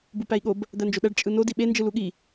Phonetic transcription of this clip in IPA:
b u p æ i̯ ɠ o b | d̪ æ n d͡ʒ o ɗ æ ɖ t͡ʃʼ ɯ n o d i ɓ e n d͡ʒ ɯ l u ɠ i

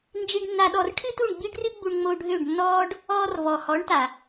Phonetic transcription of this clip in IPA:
n d͡ʒ i˧ ɖ nː a˧ ɗ ɔ˧ r ʈʰ ɨ˦ t u˦˨ ɳ ɡ͡b i˦ ɖ r ɨ˦ ɡ͡b u˧ ɳ ŋ͡m o˧ ɖʱ ø˦˨ ɖ nː ɔː˦ ɖ | ɔː˧ r v ɔ˨ h ɔ˨˦ ɳ t a˨

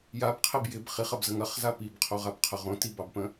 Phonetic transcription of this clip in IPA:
j a b qʰ e b j ɪ b χ i χ ɐ b z ə ŋ ɐ χ z a p i b qʰ o ʁ a b qʰ ə ʁ õ t i b ɑ b p ə̃

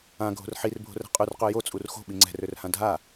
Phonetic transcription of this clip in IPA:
ã ɡʱ o̤ r ħ i r bʱ o̤ r ɛ̤ qʼ y r q ø j o t͡sʼ u r x o̤ ɓ i ŋ͡ǀ ɛ̤ r ø r h ã dʱ a

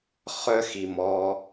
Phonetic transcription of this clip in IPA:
χ œ˦ x i˨ m ɔ˧

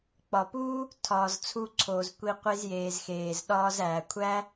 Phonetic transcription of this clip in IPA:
k͡p ɒ˨ p uː˦ | tʰ ɒː˨ z t͡sʰ u˧ ǀʰ oː˨ z kʷ i˧ qʷ i˧ z j eː˨ z x eː˨ z ɗ ɒː˧ z æː˨ kʷʰ æ˦

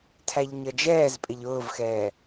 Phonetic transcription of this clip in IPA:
tʰ æ ʎ ɲ ʌ d͡ʒ ɛː z pʼ ɪ ʎ ʊː v x ɛː

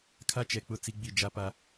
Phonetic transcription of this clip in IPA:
kʰ a˦ t͡ʃ ɛ˨ k͡p ʊ˦˨ t͡s i˦ ɡ͡b i˦˨ d͡ʒ a˦ p a˦

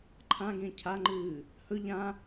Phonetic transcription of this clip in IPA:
ǃʰ ã ɡ ẽ cʰ a ŋ͡ǃ ɨː | h ɵ ʎ ã

